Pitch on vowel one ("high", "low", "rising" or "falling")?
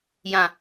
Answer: low